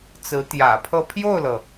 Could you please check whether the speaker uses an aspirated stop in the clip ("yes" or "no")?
yes